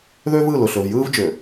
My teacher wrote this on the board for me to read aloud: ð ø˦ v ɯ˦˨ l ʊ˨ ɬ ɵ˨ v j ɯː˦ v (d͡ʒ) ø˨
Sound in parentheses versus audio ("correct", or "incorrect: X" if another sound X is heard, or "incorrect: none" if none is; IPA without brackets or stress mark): correct